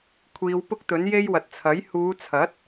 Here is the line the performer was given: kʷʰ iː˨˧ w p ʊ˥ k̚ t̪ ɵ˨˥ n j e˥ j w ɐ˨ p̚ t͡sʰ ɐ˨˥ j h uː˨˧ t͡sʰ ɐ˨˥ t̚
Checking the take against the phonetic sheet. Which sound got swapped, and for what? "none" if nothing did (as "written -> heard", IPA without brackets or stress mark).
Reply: p̚ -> t̚